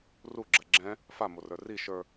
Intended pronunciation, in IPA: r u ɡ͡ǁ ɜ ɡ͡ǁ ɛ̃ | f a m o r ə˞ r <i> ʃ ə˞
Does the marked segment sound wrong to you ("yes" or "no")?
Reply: no